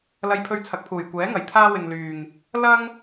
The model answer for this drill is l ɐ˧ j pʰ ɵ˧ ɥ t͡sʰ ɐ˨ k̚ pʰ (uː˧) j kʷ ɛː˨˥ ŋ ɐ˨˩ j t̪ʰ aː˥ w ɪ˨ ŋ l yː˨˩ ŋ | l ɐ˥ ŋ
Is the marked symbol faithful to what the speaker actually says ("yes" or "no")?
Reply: no